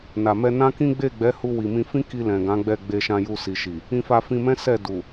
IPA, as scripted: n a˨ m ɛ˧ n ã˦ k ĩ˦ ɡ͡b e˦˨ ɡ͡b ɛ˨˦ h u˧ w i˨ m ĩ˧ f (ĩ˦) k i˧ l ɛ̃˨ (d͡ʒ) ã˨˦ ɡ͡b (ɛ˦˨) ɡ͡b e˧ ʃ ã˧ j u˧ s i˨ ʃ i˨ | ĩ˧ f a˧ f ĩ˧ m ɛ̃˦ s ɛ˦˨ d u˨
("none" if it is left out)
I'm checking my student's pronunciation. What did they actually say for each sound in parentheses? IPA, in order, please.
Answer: ĩ˦, ɡ, ɛ˦˨

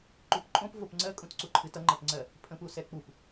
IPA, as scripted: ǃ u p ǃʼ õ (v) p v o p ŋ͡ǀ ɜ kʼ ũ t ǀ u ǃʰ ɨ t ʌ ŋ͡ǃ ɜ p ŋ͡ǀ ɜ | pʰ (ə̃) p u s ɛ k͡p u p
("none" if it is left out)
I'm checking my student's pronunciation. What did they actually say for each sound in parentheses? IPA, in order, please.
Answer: none, ə̃

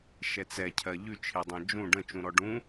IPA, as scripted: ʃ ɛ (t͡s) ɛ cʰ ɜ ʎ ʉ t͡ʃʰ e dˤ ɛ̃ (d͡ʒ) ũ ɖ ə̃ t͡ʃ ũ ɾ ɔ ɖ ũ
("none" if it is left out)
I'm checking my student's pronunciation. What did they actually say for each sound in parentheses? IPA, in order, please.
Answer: t͡s, d͡ʒ

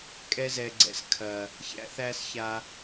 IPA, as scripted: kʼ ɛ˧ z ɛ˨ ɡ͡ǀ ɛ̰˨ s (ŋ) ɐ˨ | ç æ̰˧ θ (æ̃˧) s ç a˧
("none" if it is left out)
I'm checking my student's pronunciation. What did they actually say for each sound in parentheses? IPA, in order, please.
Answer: kʰ, æ˧

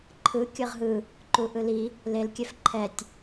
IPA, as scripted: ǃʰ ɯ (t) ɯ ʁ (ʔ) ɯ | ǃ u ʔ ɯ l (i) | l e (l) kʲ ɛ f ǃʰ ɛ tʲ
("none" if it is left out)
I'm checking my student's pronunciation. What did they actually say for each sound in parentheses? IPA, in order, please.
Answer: kʲ, ɦ, i, l

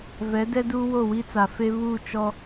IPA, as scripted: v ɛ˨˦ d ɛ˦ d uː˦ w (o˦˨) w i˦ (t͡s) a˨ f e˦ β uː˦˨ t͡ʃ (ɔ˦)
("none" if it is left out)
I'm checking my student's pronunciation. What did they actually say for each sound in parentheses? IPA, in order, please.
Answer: o˦˨, t͡s, ɔ˦

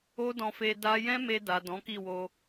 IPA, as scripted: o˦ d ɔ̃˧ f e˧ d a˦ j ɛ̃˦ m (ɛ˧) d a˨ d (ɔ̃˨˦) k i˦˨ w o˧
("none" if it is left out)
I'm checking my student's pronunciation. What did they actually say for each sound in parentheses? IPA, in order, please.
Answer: e˧, ɔ̃˨˦

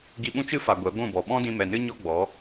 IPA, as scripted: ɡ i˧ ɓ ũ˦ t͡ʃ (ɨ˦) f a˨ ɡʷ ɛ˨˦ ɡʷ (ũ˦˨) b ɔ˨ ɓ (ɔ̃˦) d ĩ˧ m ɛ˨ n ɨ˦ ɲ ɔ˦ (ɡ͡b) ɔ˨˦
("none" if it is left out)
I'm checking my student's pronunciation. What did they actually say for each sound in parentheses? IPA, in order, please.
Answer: ɨ˦, ũ˦˨, ɔ̃˦, ɡ͡b

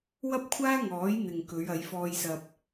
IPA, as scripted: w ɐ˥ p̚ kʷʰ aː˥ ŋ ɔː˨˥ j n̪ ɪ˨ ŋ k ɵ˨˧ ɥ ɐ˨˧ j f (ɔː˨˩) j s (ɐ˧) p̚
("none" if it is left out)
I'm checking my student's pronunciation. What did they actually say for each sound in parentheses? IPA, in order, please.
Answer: ɔː˧, ɐ˧

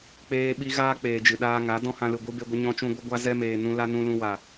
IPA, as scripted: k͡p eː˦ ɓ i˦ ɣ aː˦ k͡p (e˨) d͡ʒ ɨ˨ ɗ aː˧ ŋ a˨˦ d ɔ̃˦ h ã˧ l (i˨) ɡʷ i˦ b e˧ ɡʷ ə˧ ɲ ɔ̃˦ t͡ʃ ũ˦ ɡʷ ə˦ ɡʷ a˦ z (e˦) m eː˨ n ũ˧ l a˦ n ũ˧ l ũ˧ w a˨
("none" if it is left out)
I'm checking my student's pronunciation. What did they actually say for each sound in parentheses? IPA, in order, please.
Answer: eː˨, ɨ˨, ɛ˦

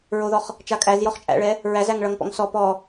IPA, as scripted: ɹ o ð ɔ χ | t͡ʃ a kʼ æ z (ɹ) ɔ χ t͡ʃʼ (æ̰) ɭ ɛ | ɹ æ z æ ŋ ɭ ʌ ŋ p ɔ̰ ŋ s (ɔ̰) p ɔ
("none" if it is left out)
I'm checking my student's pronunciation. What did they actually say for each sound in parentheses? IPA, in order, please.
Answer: j, æ̰, ɔ

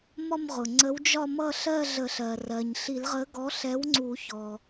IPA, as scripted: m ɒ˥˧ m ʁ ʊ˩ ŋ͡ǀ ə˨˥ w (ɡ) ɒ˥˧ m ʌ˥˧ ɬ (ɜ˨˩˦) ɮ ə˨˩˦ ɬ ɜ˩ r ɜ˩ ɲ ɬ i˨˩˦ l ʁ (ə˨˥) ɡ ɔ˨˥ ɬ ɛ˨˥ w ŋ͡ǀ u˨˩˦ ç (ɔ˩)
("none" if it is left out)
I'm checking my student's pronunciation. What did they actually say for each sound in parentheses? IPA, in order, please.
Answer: d͡ʒ, ɜ˥˧, ə˨˥, ɔ˩

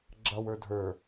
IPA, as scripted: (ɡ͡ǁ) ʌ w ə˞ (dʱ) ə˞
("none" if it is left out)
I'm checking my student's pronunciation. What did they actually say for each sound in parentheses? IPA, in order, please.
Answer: ɡ͡ǁ, dʱ

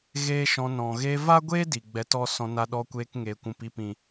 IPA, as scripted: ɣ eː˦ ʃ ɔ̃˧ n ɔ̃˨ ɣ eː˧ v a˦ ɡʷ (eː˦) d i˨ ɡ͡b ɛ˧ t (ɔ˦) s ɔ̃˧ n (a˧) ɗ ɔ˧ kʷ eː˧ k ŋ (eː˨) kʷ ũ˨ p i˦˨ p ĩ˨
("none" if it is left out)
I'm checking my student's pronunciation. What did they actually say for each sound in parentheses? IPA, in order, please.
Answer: eː˦, ɔ˦, a˧, eː˨

